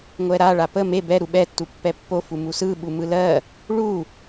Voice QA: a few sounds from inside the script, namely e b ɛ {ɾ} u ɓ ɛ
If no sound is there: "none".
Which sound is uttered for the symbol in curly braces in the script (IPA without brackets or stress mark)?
ɾ